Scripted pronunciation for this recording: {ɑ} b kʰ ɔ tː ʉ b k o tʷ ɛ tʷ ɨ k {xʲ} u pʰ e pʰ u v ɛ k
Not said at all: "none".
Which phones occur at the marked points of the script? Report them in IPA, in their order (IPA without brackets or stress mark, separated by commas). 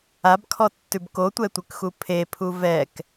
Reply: a, x